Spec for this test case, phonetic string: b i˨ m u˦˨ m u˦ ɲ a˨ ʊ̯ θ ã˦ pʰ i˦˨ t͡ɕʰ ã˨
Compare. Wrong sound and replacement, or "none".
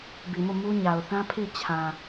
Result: none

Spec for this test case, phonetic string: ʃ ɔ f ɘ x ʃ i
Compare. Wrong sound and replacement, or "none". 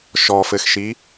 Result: none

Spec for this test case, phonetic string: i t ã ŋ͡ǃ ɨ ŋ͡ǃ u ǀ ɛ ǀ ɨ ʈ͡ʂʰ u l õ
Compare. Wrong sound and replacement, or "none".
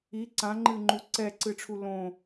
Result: t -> ǀ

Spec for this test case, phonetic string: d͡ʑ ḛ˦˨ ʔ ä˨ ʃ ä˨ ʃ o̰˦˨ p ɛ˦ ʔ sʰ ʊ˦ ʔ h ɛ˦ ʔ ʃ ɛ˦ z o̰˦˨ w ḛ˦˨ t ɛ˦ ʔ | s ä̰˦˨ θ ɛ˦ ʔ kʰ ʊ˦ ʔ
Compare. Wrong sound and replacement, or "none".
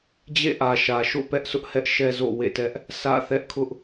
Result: none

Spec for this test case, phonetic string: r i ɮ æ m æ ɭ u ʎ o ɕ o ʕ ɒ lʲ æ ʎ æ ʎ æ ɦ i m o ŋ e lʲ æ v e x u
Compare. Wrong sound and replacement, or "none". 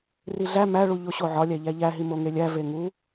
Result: x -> ŋ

